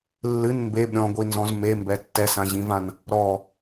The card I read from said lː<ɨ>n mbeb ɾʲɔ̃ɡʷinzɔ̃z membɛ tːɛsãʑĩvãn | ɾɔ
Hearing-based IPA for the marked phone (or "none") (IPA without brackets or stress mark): ɨ